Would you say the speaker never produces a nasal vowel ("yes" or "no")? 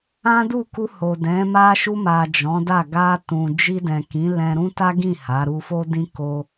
no